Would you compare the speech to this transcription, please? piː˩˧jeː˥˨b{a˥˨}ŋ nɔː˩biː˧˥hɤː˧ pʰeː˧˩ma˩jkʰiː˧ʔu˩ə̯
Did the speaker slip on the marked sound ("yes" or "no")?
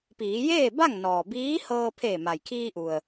no